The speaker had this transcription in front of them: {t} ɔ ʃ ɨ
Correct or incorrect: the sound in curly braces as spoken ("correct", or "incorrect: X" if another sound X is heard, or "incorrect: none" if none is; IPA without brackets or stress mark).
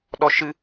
incorrect: ɗ